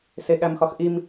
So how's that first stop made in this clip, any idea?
implosive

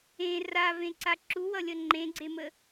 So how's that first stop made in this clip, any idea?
click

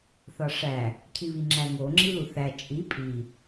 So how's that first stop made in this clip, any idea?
aspirated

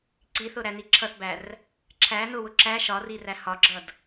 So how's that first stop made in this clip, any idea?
click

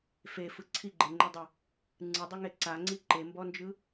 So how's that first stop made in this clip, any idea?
click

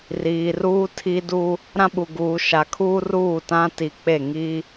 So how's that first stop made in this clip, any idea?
aspirated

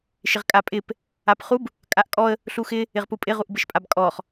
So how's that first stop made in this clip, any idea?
ejective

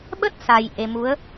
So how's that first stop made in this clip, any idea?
implosive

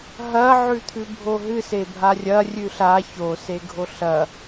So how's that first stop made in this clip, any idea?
aspirated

